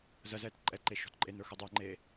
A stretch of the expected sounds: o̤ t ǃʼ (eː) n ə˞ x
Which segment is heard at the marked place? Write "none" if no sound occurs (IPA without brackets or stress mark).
e